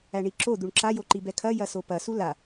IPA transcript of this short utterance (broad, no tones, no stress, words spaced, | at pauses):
æɳiǁo d̪uɳǁajoǃi bɛkʰɐ jɐsopɐ sula